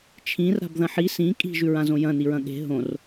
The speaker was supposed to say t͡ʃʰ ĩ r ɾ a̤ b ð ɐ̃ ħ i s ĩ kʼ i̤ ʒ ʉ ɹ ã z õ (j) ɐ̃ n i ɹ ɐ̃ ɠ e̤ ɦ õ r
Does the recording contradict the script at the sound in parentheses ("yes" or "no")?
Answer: no